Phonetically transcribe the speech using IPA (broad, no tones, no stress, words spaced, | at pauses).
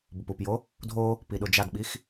bʊpupjo | dʱo | piɗʊd͡ʒadɓix